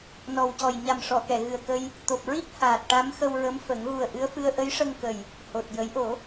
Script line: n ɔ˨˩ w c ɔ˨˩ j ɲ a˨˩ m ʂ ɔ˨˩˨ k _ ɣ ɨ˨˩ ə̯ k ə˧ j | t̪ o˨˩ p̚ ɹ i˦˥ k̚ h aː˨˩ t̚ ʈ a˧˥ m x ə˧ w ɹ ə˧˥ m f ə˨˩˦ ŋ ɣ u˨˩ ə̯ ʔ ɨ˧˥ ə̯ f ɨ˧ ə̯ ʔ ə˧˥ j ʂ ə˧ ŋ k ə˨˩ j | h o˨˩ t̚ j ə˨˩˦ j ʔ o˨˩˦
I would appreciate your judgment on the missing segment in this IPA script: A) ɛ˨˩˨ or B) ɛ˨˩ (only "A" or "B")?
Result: A